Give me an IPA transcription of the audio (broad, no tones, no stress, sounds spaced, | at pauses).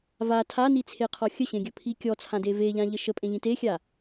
v a tʰ a n i t͡sʰ e qʰ ɔ xʲ ə ɕ ẽ ɡʲ ɵ pʰ i kʲ ɔ t͡sʰ ã d e v e ʎ ã ʎ ə ʃ ə pʼ ẽ ʎ ĩ t e xʲ a